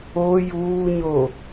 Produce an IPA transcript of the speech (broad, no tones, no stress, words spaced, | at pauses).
o juːɲo